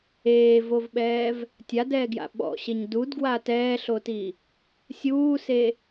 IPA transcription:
eː v o v ɓ ɛː v | tʲ a d ɛː ɡ j a̰ ɓ ɔ̰ ɕ e ɲ d u d ɡ w a t ɛː ɬ o t i | sʲ uː s e

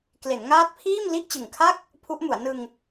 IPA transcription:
k l e˩˦ n ŋ aː˦˥ t̚ pʰ iː˥˩ m l i˥˩ ʔ t͡ɕ ɯ˨˩ ŋ kʰ a˥˩ k̚ | pʰ u˦˥ ʔ m u˩˦ a̯ n ɯ˧ ŋ

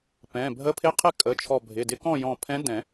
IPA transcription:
p ɛ̃˩˧˩ bʱ ə˧˥ pʰ ɪ˧˥˧ qʰ ɪ˥˨ kʼ ə˩˧˩ t͡ʃʰ ɔ˧˩ bʱ ɪ˩˧˩ d ɪ˧˥ k ɔ̃˥˨ j ɔ̃˧˩ pʰ ɛ̃˧˥ d ɛ̃˨˩˦

